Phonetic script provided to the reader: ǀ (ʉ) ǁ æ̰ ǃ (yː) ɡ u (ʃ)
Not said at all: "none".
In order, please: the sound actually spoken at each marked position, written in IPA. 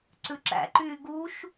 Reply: ʉ, yː, ʃ

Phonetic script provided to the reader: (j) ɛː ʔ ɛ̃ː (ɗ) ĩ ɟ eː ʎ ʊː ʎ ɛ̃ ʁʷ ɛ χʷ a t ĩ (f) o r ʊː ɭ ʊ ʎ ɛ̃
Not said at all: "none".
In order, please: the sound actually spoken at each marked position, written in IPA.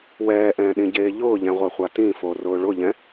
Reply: w, ɗ, f

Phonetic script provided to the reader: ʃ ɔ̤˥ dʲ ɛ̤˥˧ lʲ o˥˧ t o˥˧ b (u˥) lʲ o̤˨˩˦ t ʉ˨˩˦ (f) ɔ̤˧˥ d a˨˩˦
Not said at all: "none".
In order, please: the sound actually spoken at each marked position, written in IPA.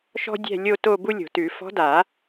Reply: u˥, f

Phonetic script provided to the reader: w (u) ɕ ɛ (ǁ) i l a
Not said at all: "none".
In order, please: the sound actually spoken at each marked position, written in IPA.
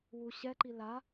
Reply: u, ǃ

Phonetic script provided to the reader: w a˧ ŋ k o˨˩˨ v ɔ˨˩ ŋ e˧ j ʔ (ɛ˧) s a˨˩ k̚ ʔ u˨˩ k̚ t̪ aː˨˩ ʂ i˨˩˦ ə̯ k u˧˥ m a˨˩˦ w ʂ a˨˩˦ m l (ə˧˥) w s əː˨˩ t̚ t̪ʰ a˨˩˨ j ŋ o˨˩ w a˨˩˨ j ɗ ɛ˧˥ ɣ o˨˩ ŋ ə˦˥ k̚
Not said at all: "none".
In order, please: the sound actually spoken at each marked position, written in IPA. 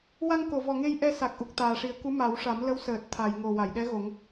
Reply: ɛ˧, ə˧˥

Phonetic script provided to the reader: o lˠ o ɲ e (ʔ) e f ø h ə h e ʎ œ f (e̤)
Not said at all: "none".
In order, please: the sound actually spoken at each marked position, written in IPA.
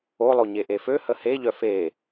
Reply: ʔ, e

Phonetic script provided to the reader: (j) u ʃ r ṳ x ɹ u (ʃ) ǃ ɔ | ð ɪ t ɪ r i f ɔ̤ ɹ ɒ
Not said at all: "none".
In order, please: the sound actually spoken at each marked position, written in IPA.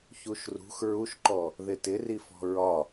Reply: ç, ʃ

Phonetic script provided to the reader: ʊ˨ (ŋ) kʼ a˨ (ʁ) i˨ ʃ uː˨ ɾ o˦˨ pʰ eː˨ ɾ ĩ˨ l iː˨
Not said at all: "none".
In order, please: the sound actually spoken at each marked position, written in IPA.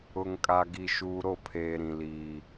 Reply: ŋ, ɡ

